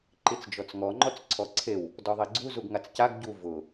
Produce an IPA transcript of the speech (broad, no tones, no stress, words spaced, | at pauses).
ǃit͡sd͡ʒɔt͡sŋɔ ŋ͡ǃɔt͡sǀʰɔǀʰew | dɔðˤiɡ͡ǀu zuɡŋat͡scaɡ ɟu vʊ